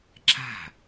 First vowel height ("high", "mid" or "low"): low